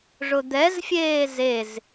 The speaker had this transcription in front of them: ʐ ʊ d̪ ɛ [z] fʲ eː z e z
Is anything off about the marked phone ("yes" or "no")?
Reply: no